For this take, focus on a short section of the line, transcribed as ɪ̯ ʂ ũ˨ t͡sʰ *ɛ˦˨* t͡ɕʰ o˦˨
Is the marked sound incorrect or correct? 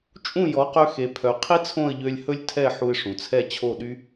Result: correct